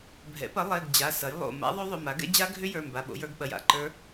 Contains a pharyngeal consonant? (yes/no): no